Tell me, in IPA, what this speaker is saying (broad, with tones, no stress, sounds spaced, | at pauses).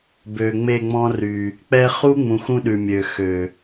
b ø˨ ŋ͡m e˦˨ ŋ͡m ɔ̃˦ r y˨ | k͡p ɛ˦ χ u˦ ŋ͡m ũ˨ x ũ˦ ɗ ʉ˨ mʲ ø˨ x ø˨